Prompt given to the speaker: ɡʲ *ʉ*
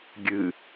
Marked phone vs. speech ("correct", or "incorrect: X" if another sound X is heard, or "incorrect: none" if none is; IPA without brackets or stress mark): incorrect: ɨ